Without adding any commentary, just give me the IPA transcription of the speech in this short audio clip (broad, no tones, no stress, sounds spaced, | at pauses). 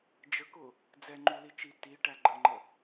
d͡ʒ ə k ʊ | d͡z ɛ ŋ͡ǃ u l i t͡ʃ i t i ʈ æ ɡ͡ǃ ə ŋ͡ǃ ə